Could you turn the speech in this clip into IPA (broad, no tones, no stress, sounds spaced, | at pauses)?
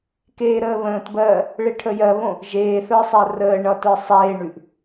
k eː ɾ əː β ə̃ː t b ɜː | ɭ e ʈʰ ə j ɜ β õ | ʒ eː θ ə˞ sˤ ɜ r əː ɳ ʌ t ə˞ sˤ eː ɳ ʉ ʔ